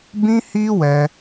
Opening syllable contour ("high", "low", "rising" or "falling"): high